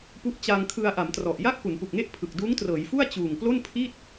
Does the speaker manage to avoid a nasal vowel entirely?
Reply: yes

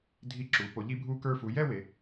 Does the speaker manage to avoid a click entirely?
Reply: no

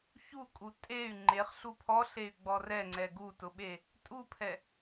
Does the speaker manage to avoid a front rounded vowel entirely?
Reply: no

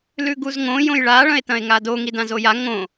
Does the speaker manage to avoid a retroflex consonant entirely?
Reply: no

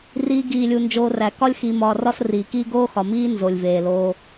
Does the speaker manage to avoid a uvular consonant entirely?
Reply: yes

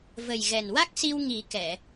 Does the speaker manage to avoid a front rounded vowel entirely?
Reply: yes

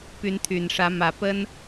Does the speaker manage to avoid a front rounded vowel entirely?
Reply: no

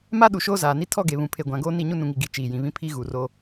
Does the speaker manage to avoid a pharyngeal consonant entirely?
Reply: yes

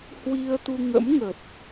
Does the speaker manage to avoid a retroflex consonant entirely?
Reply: yes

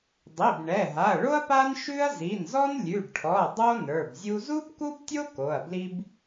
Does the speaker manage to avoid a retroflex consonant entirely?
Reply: no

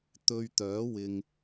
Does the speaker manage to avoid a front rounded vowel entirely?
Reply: no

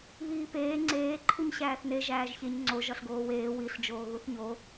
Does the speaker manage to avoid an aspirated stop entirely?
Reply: no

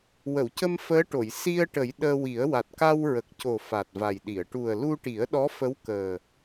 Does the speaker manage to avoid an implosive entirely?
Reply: no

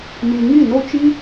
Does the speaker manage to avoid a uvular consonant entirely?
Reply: yes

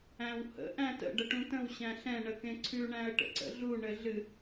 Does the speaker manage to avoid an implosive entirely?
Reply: yes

